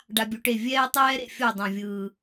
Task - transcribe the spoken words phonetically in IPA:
ɖa˦bʲu˧ʈe˦˨ vʲɛː˦tˤɛː˦ ɾḛ˨fʲo˦˨ dˤã˨vʲɯː˨

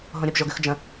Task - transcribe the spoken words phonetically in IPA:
ɦõɾʲəb ʒoɡʉxd͡ʒə̃

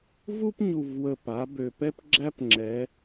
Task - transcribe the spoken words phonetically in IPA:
vu˥pɲu˨˩vwə˨˩ pa˩˧ bø˨˩pɛ˥p ɡ͡ǁæ˥pŋ͡ǁɛ˩˧

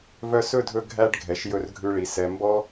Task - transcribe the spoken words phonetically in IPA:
vœ˧sɵ˦˨dʱɵ˧ ɡʱæ˧ɖ ɡʱɛ˨ʃjɵ˧rɡʱʉ˧ɭi˨ sɛ˨ mbɔ˦

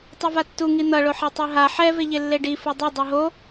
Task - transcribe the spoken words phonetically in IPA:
tˤɯvatːu ŋin̪ʌ ɭoħɛtˤiɦa ħɛ veʎelːeɖi fɯdˤo dˤeɦo

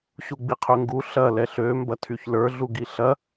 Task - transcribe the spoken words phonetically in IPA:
ɕuɡ͡biqʰøŋɡu ɬɐ lɛɬø mbɐtʰyçlə˞ ɮuɡiɬɐ

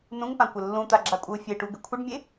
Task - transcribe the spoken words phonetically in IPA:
nũŋpãkʷɘ lːũt̪aɡ͡ǁakʷʼɨu̯ fʲeʈuɡɘ kʷʰɘɖmʲe

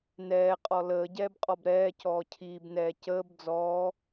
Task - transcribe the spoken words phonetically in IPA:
nɛːqʼɔ ləːɟɛːbqʼɔb ɾɛːcɔː cʰiːbnɛː cəːb d͡zɔː

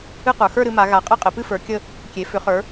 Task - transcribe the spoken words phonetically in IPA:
ɨ˥˧qə˞˩˧ xə˞˥˧ɾɨ˩˧ma˩˧ ɣa˩˧qʼɘ˥˧ qʼɘ˩˧pɨ˥˧fə˞˩˧ kʲə˥˧ | kʲe˩˧ fʏ˩˧χə˞˩˧

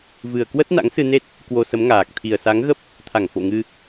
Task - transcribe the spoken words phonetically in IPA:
vɨ˨˩ə̯kwə˦˥t̚ na̰˧˥ŋsɨ˧ne˦˥t̚ | kwo˧sə˨˦mŋaː˨˩k̚ t̪ʰi˨˩ə̯sa˨˦ŋɣə˦˥p̚ | t̪ʰa˧˩ŋfo̰˧˨ ŋɨ˧

